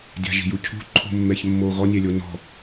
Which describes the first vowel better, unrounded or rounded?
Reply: unrounded